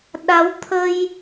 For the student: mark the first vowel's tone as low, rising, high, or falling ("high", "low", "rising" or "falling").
rising